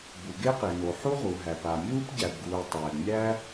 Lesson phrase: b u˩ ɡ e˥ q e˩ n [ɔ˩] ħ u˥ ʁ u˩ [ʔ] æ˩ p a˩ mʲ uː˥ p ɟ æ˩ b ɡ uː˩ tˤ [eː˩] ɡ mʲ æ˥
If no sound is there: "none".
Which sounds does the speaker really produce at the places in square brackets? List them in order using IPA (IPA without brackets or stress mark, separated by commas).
o˩, ɦ, ɛː˩